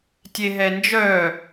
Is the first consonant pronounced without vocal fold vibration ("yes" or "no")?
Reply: yes